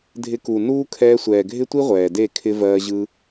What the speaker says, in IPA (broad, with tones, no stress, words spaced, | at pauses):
dʱɪ˧ku˨nuː˦ kʰɛː˧sʷɛː˨ɡʱɪ˦tʷi˦ ʁʷɛː˨de˦˨ kʰɪ˧vɜː˧ʑɯ˦